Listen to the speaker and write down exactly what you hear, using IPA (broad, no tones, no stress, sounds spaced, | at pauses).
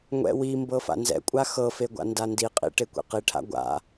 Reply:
ŋʷ ɛ̰ w i m b ɤ f a̰ n z ɛ̰ kʷʼ a x ɤ f e ɡʷ a̰ n d a n d i qʼ ḭ ʈ e kʷ ḛ q i ʈʰ a̰ ɡʷ a̰